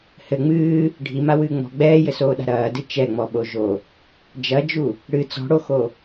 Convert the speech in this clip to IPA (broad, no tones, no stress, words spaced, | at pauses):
hɘ ŋ͡mɨː | ɖʱimawɨː ŋ͡mɔ̤ ɡ͡bɛːjɘsoːɗa̤ ɾɐːdɨ t͡ʃɛŋ͡mɔɓo ʒo | d͡ʒɐd͡ʒu | ɽɨ t͡sɔ̤ɽoxo